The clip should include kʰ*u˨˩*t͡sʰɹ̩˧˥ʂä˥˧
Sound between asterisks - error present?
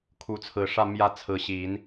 yes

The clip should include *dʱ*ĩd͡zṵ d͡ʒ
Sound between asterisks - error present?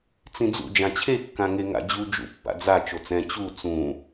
yes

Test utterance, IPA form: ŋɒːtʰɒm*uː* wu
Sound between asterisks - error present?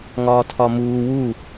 no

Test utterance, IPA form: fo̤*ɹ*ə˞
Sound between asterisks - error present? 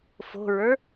no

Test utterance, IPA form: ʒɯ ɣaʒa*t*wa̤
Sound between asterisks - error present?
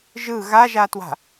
no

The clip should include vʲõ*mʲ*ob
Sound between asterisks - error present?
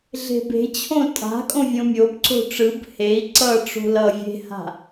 no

